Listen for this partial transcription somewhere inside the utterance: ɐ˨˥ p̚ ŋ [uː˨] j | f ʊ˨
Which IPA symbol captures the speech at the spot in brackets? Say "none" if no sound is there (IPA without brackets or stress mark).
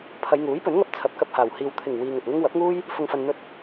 uː˥